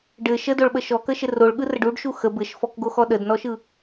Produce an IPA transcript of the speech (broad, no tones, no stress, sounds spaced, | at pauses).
ɖ ɘ ʃ ə d o ɭ ɓ ə ʃ ɔ k ə ʃ ɘ r o ɭ ɠ ɯ r ə ɖ u ɖ ʃ u x ə b ɘ ʃ f ɔ k ɡ o x ɔ ɗ ə d n ɔ ʃ ɯ